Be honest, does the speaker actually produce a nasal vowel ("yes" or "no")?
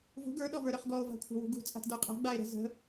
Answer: no